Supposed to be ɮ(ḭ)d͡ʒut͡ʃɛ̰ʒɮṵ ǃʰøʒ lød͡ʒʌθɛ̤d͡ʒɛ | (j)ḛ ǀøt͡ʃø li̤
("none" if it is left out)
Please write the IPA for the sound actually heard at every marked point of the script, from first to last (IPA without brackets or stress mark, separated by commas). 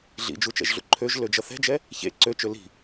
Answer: ḭ, ç